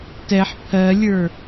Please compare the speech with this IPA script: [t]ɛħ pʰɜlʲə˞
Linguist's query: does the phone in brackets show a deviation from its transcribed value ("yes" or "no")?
no